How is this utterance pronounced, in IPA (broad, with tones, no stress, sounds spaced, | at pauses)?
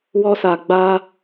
w ɔ˧ s a˨ ɡ͡b a˧